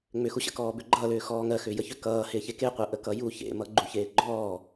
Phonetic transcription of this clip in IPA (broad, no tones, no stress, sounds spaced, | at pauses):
ŋ͡m ʏ x u ɕ ə̰ k ɔː b ʏ ɡ͡ǃ ʌː l ʏː x ɔː ŋ ɜ x ʏː j ə ç ʏ k ʌː h ɪː ç e k e qʷ ɜ ʔ ə k ʌ j u ç ḛ m ʌ ɡ͡ǃ u ç eː ɡ͡ǃ ɔː